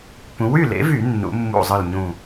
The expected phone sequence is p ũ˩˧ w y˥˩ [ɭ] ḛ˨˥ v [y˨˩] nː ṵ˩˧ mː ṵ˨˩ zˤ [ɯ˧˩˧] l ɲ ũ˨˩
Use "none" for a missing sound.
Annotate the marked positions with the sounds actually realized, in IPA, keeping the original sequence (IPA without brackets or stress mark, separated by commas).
l, y˧˩˧, ɯ˨˩